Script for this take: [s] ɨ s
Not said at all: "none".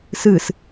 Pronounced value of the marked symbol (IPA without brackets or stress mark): s